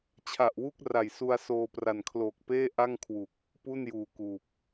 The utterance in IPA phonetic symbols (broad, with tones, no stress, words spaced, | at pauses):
t͡ɕʰa˨˩ʔwu˥˩k̚ra˨˩j su˧a̯soː˧pra˨˩nkʰloː˨˩k̚ peː˥˩ ʔa˥˩ŋkʰwu˨˩k̚ | pu˥˩njuː˨˩kuː˨˩p̚